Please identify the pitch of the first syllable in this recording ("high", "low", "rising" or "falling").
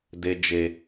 low